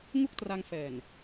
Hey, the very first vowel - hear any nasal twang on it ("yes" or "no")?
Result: no